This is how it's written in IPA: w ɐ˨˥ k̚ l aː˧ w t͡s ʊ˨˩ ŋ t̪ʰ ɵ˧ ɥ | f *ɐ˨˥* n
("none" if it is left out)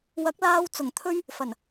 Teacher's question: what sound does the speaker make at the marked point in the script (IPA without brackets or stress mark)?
ɐ˨˩